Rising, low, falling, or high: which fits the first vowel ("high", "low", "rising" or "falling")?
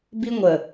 high